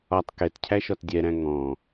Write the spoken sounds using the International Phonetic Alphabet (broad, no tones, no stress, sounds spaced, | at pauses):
ɒ tˤ k ɛ t cʰ æ ʃ ɒ t dʲ ɛ ɾ æ̃ ŋ ɔ̃